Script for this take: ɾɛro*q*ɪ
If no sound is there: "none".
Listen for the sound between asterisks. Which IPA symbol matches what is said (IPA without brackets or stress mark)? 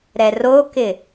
k